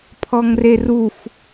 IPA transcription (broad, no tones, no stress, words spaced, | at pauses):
pʰɔŋreruf